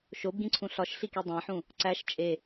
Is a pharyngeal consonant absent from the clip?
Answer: no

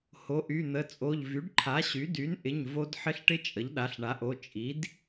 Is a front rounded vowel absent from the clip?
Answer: no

